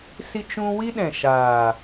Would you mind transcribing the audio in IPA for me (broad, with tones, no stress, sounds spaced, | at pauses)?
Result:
s i˧ t͡ʃ ũ˧ w i˦ ɗ ɛ̃˨ ʃ aː˨